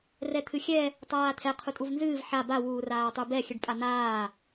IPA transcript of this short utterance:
r ɛ t̪ʰ ɨ xʲ ɛ | tˤ aː t̪ʰ ɛ qʰ u tʼ u v n z ɨː v ħ a b a w uː r aː tˤ u b ɛ xʲ ɨ ɖ pʼ a n̪ aː

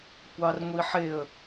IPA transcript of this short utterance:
kʷ ɑ r ŋʷ i ħ e ə̯

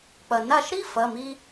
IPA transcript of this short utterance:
k͡p ɐ˩ n a˧˩ ʃ ɾ i˦ f ɐ˩˧˩ m i˦

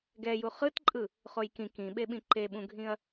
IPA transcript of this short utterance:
ɡ ɛ j u χ ɯ t ǃʼ ɯ | χ o j k ĩ k ĩ ɓ e ɓ ĩ ǃ e ɓ ũ ɡʱ ĩ ɐ̯

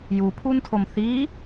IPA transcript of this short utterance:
j u pʰ u n tʰ o m θ i

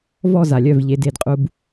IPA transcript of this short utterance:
v ɔ˦˨ z a˨ lʲ œ˦˨ v ʎ e˨˦ d e˧ d qʼ u˦ b

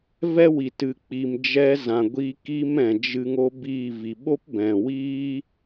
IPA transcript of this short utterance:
v ɛ˦ w i˨ t ɨ˨ k͡p i˨ m d͡ʒ ɛ˧ z ã˨ ɡʷ i˧ k i˧ m ɛ̃˨ d͡ʒ ɨ˧ ŋ o˦ b iː˦˨ v i˨ ɓ o˦ p b ɛ̃˨ w iː˦

